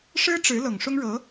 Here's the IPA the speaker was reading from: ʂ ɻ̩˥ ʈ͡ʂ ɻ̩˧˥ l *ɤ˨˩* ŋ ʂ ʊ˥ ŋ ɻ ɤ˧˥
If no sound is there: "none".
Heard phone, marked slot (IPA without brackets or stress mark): ɤ˨˩